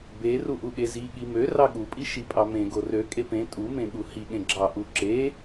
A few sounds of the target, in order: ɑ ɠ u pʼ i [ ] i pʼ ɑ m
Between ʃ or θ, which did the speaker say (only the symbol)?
ʃ